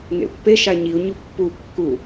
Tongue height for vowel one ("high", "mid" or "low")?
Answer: mid